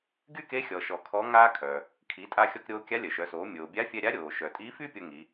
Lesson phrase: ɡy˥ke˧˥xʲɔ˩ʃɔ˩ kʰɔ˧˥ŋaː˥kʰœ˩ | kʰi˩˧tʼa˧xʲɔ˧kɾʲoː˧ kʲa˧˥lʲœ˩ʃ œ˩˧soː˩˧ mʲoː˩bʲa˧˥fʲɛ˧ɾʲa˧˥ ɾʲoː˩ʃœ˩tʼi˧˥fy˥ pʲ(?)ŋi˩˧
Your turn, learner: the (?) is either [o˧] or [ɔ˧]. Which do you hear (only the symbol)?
o˧